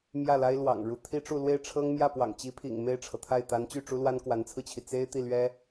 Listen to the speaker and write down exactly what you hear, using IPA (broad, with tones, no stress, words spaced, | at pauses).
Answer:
mjä˥˩la˥ɪ̯lwɑ̰˨˩ŋ ɻu˧˥t̪ʰi˥ʈ͡ʂu˥˧ lwe˥˩ɪ̯ʈ͡ʂʰɤ˥ŋ mjä˥˩pwɑ̰˨˩ŋt͡ɕi˧˥pʰḭ˨˩ŋ me˥˩ɪ̯ʈ͡ʂʰɤ˩t̪ʰa˥˩ɪ̯ t̪a˧˥nt͡ɕy˥˩ʈ͡ʂu˥lwa˥n kwa˧˥nt͡sʰɹ̩˧t͡ɕʰi˩ t͡se˥ɪ̯ t̪i˥˩lɥɛ˥